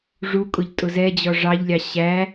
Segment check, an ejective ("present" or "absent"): present